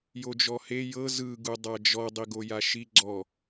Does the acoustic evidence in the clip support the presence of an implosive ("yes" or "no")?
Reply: no